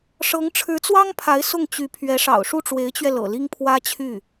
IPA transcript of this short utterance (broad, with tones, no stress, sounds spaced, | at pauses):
ʂ ɤ˧˥ ŋ ʈ͡ʂʰ ɻ̩˧˥ t͡s w ɑ˥ ŋ pʰ a˧˥ ɪ̯ s ʊ˥˩ ŋ t͡ɕ y˧˥ pʰ ɥ ɛ˧˥ ʂ ɑ̰˨˩ ʊ̯ ʂ u˥˩ ʈ͡ʂ w e˧˥ ɪ̯ t͡ɕ ɥ ɛ˧ l ɤ̰˨˩ l i˥ ŋ pʰ w ä˥ t͡ɕʰ y˥˩